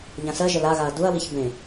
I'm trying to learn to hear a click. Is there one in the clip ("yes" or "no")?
no